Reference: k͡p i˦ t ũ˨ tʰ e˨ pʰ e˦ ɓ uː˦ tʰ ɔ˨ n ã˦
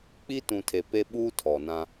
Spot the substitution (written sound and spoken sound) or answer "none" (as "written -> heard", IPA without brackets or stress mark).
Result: pʰ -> p